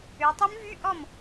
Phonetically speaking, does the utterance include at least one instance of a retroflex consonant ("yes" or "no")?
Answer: no